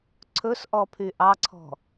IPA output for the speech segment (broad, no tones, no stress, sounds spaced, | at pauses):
ǀʰ ɵ s ʔ ɔ pʰ y ʔ ɑ ǀʰ ɔ̤